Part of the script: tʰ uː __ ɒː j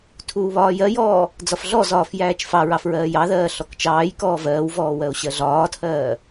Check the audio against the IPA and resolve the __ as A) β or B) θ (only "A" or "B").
A